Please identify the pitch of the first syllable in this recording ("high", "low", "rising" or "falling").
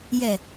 low